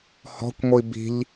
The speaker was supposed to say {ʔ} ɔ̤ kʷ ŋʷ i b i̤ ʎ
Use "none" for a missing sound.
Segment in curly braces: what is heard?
h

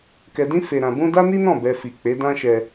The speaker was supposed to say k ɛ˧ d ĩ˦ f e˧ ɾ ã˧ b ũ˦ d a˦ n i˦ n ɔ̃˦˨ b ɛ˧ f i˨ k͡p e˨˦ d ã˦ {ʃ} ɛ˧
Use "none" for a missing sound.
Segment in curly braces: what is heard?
ʃ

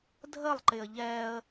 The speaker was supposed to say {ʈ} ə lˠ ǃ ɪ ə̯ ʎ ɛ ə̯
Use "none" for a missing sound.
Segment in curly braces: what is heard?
dʱ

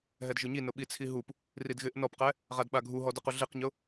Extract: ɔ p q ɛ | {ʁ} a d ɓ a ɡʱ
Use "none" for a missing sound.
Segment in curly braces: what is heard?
ʁ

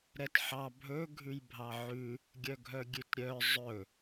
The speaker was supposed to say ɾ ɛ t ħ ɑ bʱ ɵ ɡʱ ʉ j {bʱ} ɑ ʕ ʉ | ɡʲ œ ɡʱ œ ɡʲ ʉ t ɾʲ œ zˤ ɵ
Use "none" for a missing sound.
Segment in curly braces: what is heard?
bʱ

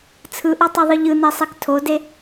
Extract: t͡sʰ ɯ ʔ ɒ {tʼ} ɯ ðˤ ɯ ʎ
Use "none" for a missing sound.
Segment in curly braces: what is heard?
tˤ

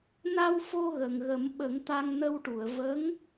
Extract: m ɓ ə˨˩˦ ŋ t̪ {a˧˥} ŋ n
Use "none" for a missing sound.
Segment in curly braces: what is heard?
a˧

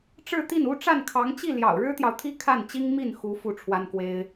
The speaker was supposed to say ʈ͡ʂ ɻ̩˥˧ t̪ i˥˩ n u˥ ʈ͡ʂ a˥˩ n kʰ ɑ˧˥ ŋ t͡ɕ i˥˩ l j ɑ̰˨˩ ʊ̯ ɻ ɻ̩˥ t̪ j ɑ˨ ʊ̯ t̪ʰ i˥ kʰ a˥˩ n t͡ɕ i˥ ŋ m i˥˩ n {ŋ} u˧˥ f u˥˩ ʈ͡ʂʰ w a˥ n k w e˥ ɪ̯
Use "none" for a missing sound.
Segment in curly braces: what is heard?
x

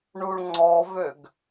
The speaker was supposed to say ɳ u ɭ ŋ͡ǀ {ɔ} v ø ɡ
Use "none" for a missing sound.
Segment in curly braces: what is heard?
ɔ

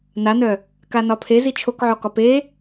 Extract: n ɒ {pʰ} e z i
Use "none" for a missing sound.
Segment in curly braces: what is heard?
pʰ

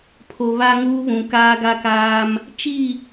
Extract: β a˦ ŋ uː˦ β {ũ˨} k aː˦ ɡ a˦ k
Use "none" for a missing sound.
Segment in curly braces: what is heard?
ũ˨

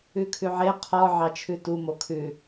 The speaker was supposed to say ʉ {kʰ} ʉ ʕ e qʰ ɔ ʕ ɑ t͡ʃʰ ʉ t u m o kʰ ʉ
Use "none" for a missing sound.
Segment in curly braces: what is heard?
kʰ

